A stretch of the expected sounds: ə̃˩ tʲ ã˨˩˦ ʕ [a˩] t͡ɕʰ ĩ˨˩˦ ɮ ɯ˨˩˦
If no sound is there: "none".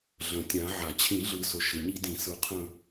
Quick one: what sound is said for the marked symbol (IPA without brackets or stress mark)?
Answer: a˩